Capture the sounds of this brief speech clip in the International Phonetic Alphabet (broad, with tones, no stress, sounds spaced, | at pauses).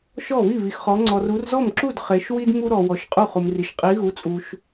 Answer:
ʃ ɔ˥˩ β i˥˩ β i˨ x χ ɔ˨˦ ŋ͡ǀ ɔ˨ r u˨˦ r z ɔ˥˩ m ǁ u˥˩ d χ e˨˦ ʃ w i˥ d m u˥ ɾ ɔ˨ w ɔ˨˦ ʃ qʼ u˥˩ χ u˨ m r i˨ ʃ qʼ i˨˦ ɣ u˨˦ t͡sʼ u˨ ʃ